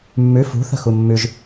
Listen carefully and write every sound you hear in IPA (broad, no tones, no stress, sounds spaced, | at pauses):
mː ʉ f ṳ θ ə̤ x u mː ʉ ʒ